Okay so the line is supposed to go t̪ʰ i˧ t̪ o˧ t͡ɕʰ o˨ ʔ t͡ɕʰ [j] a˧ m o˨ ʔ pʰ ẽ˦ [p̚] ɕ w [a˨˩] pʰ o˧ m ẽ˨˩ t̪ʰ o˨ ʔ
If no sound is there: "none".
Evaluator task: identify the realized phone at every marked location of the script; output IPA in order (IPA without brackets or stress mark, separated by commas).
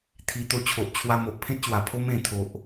w, t̚, a˨˩